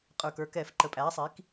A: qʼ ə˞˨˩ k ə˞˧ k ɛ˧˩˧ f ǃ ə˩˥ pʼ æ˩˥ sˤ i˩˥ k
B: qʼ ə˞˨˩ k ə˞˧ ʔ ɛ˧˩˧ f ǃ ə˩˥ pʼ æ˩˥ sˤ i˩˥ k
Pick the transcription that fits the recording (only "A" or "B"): A